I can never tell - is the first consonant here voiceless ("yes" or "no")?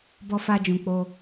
no